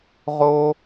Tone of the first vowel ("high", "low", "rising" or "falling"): high